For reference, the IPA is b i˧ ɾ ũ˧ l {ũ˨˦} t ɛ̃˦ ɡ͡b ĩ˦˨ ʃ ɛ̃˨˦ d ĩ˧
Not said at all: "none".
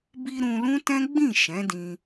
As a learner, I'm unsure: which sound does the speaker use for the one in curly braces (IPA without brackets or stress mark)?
ũ˦